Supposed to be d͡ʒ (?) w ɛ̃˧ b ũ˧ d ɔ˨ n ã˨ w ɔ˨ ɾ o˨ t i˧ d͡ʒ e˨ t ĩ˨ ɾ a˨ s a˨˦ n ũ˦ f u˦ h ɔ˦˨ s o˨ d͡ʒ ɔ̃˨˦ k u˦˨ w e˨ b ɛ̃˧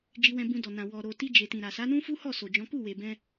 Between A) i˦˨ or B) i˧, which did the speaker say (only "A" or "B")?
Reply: B